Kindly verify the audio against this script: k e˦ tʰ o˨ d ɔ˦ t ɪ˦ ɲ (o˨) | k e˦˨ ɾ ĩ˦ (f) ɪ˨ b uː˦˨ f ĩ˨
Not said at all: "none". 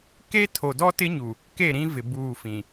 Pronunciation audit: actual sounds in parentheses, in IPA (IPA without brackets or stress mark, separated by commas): u˨, v